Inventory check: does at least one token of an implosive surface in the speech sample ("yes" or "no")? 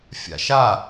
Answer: no